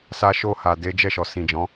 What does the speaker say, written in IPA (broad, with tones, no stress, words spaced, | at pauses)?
sa˧ʃo˧ha˨ de˨˦ d͡ʒɛ˦˨ʃɔ˨sĩ˨d͡ʒɔ̃˨˦